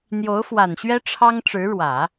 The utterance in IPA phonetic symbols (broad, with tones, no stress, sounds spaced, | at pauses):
n̪ j o˧˥ ʊ̯ f w a˨˩ n ɕ ɥ ɛ˥ ʈ͡ʂʰ ɑ˥ ŋ ʈ͡ʂ ɻ̩˧˥ ɻ w ä˨˩˦